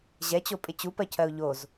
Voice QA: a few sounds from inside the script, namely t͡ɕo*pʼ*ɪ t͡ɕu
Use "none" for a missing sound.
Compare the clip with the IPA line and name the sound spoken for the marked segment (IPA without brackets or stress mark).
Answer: pʼ